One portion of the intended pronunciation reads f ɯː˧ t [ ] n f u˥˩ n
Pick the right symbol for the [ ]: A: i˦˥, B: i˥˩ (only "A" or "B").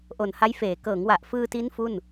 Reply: A